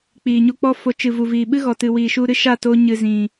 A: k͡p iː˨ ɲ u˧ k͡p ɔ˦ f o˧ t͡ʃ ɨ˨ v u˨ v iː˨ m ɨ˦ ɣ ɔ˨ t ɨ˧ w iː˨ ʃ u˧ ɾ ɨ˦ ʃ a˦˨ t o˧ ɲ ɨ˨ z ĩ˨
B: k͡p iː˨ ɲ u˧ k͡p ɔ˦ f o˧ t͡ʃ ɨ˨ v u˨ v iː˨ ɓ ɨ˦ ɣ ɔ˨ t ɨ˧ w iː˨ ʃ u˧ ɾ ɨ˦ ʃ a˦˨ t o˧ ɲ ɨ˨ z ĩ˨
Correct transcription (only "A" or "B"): B